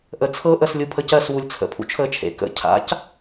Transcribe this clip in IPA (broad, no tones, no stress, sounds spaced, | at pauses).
ʔ ə t͡sʰ ɤ ʔ ə s lʲ u pʰ ə c ɜ s w u lʲ t͡sʰ ə̰ pʰ ṵ t͡ʃʰ əː t͡ʃʰ ḛ k ə̰ cʰ a̰ c